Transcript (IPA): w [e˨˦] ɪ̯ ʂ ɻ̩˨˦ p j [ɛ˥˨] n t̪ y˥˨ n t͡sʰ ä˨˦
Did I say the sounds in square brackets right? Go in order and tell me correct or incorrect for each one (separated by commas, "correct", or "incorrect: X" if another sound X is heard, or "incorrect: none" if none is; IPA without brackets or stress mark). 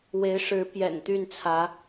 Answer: correct, incorrect: ɛ̰˨˩